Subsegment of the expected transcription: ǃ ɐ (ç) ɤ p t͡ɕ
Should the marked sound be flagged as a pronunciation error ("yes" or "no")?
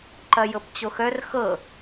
yes